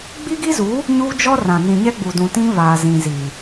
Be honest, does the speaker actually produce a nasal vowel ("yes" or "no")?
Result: yes